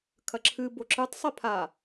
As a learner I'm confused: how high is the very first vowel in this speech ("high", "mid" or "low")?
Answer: low